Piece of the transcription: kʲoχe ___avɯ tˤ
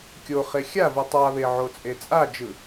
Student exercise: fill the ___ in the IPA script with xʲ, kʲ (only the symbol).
xʲ